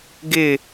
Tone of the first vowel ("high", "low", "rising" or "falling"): falling